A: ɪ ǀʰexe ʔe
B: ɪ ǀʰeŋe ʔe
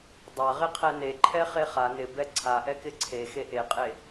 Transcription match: A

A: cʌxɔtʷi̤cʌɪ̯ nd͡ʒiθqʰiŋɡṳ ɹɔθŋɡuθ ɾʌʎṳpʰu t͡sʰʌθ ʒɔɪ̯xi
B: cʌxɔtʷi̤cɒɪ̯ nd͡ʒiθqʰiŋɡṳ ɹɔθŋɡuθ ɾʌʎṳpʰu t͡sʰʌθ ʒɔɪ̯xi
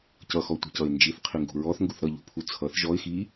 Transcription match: A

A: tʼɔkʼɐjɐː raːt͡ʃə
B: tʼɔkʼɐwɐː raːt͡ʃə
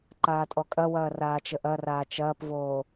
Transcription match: B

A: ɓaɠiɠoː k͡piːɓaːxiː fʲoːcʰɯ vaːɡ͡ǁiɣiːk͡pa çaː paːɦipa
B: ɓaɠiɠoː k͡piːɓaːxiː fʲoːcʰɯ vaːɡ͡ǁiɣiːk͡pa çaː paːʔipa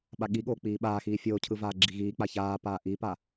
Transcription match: B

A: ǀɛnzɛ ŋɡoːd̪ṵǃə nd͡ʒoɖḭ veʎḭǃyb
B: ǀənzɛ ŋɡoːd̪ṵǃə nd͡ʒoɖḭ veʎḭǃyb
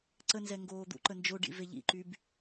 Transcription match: B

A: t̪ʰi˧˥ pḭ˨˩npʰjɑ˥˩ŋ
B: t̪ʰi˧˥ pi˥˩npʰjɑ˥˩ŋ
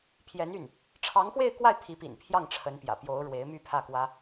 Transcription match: A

